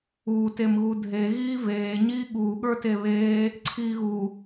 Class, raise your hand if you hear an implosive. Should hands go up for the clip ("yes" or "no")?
yes